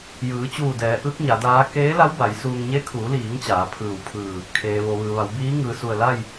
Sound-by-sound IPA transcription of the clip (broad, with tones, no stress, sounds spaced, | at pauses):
j ɯː˩˧ t͡ɕ uː˧˩ d ɛː˩˧ ʔ ɯː˧˥ k̚ ɲ a˩˧ d aː˧˥ k eː˧˥ l a˧˥ w b a˩˧ j s uː˧ ŋ ɲ e˧˥ kʰ uː˩˧ l iː˩˧ ŋ t͡ɕ aː˩˧ pʰ ɯː˧˩ w pʰ ɯː˧˩ | kʰ eː˩ ʋ o˩ ʋ ɯː˩ ʋ a˩˧ w b iː˧˥ ŋ ɯː˩ s u˧˩ ə̯ l a˥˨ j